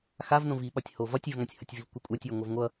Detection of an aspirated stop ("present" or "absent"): absent